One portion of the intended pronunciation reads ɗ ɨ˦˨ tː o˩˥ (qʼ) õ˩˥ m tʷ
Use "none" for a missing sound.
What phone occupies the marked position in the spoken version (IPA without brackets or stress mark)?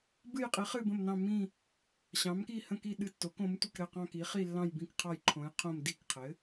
k